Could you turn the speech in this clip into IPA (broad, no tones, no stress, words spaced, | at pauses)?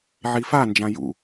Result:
ʕifand͡ʒã jṵ